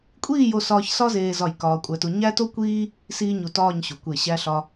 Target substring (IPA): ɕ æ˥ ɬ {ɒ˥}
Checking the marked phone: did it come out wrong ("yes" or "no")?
no